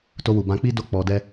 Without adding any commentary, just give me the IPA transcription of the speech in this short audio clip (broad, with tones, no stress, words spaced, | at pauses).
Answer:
to˧wu˨bã˧k͡pi˦ do˦k͡pɔ˧dɛ˦